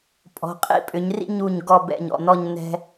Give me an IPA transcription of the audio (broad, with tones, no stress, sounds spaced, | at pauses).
pʼ ɔ̤˩˧ qʼ ḭ˧ pʼ ʏ˩˧ ɲ r ḭ˥˧ ɲ u˧˩ ɲ ɡ ɔ˧˩ b ɛ̰˧˩ ɲ ɔ̰˧˩ n ɔ˥˧ ɲ n ɛ̤˧